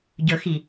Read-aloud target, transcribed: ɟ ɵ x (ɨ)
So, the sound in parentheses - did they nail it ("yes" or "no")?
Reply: no